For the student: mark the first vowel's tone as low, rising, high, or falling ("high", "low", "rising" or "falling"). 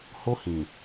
high